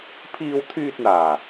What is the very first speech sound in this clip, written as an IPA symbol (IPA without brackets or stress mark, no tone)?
pʰ